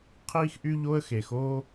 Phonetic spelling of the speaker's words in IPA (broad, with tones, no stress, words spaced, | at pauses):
qʰiː˥xʔy˥ ʎo˥ə̯xe˩xoː˥